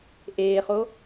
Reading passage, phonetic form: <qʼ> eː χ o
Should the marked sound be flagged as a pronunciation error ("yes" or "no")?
yes